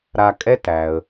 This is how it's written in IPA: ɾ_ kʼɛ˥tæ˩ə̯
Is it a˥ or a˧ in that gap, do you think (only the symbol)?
a˧